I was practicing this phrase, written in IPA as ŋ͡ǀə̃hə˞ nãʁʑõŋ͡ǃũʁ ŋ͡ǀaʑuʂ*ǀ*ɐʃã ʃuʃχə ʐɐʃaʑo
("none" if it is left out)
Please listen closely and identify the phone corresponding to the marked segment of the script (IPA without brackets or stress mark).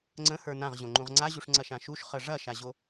ŋ͡ǀ